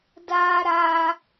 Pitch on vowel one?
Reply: high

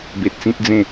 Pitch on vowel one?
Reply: low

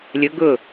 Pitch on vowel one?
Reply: rising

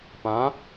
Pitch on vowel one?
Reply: rising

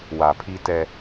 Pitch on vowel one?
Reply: low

